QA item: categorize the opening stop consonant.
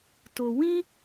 plain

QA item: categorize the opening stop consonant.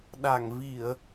implosive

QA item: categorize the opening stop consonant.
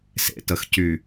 plain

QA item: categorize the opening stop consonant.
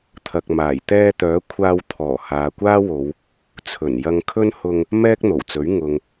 aspirated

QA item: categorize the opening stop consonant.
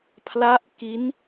aspirated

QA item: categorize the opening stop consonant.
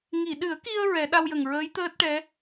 implosive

